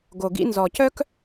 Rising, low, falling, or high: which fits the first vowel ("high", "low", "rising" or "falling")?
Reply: low